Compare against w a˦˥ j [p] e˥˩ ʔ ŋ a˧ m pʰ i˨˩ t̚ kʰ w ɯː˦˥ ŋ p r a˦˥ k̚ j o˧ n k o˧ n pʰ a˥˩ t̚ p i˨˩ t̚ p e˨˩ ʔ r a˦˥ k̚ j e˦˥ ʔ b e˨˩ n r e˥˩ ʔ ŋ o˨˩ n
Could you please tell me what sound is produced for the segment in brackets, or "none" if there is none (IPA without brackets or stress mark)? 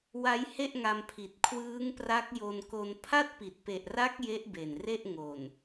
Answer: h